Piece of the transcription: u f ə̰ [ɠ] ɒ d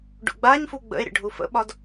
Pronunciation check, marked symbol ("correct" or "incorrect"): incorrect